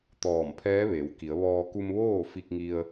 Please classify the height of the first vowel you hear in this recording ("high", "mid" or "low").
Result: mid